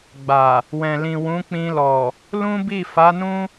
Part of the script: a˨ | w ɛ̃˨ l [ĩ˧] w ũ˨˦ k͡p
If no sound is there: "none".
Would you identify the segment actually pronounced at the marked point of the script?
ĩ˨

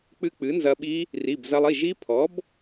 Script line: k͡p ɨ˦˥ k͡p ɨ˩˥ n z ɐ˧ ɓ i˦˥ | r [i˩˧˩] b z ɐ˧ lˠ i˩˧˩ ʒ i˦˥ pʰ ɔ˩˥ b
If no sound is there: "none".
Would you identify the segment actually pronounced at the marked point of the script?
i˩˧˩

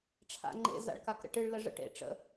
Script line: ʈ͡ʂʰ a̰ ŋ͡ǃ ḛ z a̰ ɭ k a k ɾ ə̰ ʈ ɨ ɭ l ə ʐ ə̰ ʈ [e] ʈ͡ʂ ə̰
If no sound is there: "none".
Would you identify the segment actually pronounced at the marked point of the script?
ḛ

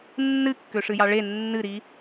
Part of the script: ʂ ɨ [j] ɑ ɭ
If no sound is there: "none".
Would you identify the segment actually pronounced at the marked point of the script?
j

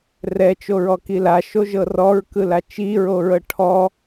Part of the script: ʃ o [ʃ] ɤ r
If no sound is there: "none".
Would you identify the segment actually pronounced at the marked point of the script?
ʒ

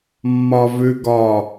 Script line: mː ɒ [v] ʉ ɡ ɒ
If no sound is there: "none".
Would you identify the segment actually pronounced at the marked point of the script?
v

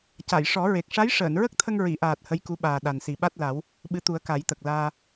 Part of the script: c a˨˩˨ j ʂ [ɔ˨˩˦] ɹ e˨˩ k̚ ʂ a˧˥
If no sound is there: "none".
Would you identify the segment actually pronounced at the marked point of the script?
ɔ˨˩˦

